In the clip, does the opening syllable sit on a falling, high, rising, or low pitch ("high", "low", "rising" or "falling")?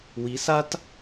rising